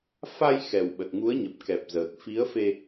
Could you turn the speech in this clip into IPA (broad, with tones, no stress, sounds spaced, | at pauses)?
f a˧ j x ɛ˨˩ w ɓ ə˨˩ t̚ ŋ u˨˦ ə̯ ɲ ə˨˩ p̚ k ɛ˨˩ p̚ z əː˨˩ k̚ f i˨˦ ə̯ f e˧